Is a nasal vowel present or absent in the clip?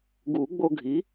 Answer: absent